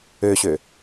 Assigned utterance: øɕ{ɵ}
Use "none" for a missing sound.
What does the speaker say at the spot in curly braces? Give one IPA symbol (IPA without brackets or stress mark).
ø